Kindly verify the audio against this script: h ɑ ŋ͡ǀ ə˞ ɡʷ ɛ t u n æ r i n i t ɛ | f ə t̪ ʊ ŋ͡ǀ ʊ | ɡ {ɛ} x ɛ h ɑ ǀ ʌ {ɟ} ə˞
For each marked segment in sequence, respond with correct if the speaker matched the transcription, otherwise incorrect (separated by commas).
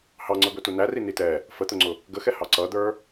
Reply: incorrect, incorrect